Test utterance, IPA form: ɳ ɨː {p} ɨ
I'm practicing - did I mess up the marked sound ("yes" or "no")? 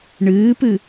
no